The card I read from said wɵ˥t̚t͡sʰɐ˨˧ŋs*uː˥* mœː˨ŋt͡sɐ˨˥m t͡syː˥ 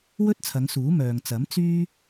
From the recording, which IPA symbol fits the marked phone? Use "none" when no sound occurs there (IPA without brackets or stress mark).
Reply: uː˨˥